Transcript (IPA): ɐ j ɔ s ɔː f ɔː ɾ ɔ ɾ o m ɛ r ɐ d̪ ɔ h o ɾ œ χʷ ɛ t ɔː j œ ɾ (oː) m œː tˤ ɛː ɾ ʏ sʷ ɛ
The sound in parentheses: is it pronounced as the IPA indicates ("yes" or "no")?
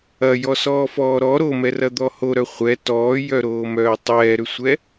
yes